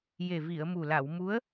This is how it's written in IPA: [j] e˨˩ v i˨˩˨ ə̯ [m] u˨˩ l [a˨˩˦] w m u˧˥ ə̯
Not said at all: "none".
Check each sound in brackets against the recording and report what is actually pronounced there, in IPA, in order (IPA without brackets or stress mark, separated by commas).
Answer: j, m, a˨˩˨